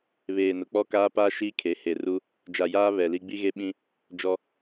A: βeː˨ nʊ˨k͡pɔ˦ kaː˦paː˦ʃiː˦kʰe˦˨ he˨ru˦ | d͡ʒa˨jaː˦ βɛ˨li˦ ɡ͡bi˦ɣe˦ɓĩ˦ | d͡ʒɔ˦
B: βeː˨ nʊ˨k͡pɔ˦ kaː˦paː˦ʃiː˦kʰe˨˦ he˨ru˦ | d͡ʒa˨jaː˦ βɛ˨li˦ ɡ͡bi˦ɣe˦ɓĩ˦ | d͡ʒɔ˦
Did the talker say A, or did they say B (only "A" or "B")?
B